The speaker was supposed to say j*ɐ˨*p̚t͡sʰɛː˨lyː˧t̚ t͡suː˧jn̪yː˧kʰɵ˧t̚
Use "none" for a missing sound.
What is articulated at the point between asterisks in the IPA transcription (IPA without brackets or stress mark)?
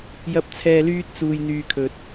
ɐ˨